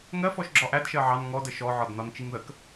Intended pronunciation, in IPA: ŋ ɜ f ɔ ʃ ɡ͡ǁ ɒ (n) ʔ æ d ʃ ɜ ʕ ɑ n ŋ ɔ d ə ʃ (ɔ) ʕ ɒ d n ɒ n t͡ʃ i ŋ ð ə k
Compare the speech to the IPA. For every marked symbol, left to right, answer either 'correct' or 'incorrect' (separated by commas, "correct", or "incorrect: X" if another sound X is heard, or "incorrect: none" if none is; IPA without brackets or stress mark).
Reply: incorrect: none, correct